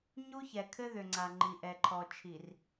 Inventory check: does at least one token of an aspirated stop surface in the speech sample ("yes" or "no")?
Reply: yes